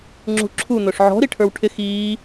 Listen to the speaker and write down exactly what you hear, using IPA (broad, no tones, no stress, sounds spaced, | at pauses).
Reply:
ŋ͡ǁ ṳ ǁʰ u n̪ ʊ ʂ ʕ ɔ̤ ɾ i ʈʰ ə˞ w ʈʰ ɪ x iː